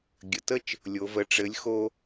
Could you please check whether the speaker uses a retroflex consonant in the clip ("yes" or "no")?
yes